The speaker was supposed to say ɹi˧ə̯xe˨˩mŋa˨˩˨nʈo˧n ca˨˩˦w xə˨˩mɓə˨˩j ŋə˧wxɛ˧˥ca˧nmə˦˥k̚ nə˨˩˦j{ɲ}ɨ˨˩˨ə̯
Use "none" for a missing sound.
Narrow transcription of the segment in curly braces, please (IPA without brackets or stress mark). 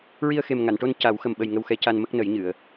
ɲ